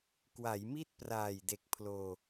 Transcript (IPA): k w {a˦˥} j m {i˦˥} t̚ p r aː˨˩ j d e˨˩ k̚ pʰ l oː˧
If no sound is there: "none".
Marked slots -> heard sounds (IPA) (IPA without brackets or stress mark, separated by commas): a˩˦, i˥˩